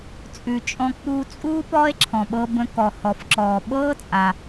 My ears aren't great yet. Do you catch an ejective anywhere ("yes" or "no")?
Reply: yes